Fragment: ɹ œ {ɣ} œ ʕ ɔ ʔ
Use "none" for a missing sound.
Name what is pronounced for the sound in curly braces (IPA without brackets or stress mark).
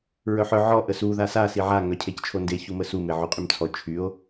ħ